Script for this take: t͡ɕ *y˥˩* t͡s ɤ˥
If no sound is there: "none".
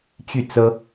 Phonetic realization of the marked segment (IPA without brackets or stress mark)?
y˥˩